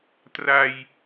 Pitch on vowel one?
low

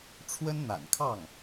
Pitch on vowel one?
high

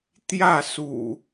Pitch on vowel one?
falling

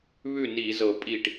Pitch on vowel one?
falling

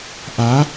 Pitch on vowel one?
rising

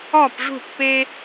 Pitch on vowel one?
falling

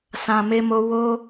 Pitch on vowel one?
low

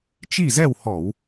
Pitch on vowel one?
falling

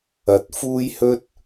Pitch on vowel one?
rising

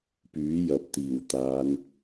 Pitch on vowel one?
rising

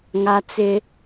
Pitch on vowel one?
high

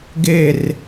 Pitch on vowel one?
falling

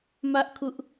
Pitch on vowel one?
high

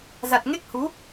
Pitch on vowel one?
low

